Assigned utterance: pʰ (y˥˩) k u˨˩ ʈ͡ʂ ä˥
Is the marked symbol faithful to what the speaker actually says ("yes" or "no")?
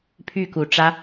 yes